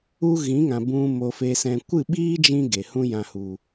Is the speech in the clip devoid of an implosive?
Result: no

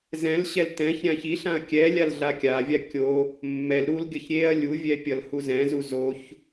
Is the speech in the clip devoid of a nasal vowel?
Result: no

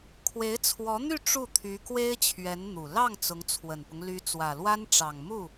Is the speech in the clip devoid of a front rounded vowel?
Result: no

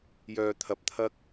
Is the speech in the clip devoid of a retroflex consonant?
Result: yes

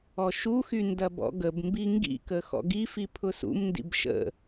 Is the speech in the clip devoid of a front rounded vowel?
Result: no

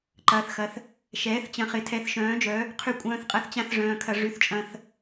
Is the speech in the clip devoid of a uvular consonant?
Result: no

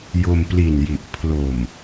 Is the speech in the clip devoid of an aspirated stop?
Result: no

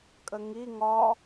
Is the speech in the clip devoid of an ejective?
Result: no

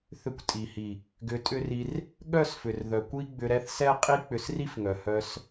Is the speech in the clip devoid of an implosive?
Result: no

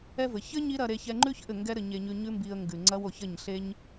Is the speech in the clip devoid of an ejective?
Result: yes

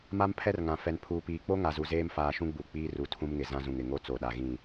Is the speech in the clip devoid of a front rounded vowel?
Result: yes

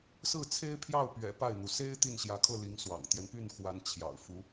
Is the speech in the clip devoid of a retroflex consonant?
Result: yes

